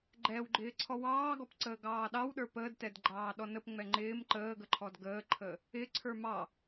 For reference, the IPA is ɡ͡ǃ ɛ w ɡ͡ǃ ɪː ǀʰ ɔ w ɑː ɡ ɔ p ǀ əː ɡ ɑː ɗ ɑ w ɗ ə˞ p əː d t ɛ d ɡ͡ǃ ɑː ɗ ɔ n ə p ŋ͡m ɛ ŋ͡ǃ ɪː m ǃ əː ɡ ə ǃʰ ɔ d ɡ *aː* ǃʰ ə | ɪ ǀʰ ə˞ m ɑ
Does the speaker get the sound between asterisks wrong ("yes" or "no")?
yes